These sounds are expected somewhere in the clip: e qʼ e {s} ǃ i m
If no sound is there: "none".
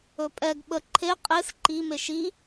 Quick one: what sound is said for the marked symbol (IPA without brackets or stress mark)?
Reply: s